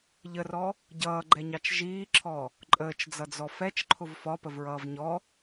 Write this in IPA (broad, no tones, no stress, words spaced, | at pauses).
ʎərɔ | ɟʌːɡ͡ǃɛɲɑt͡ʃ ʒiːǁʰɔ | ǃʼəːt͡ʃd͡zʌd͡zɔ fɛt͡ʃǃʰʊv fɒpəvɹʌːv ɲɔ